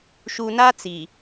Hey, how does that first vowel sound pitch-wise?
low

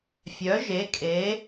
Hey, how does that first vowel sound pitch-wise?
rising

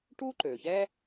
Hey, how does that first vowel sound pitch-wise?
high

